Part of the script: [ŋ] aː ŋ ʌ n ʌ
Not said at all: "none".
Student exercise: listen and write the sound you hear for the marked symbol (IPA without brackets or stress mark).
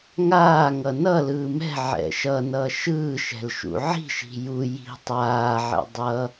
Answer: ŋ